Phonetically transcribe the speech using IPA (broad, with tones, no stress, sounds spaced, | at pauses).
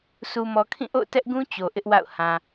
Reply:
s u˨ m ɔ˨ kʰ ĩ˦˨ ʔ o̰˦˨ ʊ̯ t ɛ˦ ʔ ɡ ũ˦ t͡ɕ o˨ ʔ ɪ˦ ʔ w a̰˦˨ ʊ̯ h ã˨